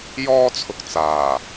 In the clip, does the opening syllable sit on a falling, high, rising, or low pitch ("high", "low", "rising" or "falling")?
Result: high